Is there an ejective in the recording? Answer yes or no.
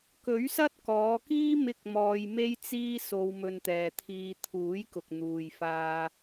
no